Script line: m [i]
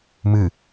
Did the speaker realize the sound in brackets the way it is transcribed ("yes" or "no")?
no